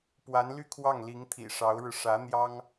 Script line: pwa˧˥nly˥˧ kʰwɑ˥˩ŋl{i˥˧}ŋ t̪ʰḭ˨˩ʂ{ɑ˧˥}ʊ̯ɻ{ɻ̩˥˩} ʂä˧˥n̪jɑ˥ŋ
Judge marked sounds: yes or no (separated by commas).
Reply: no, yes, no